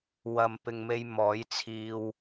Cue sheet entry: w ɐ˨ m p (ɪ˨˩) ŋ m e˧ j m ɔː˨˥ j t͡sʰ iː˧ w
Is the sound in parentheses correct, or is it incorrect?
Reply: incorrect